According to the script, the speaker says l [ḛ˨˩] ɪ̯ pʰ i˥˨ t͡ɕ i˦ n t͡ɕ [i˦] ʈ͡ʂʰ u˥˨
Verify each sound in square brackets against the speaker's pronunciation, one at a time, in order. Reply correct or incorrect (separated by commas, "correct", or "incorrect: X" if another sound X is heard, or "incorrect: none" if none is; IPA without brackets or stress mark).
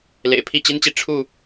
correct, incorrect: i˨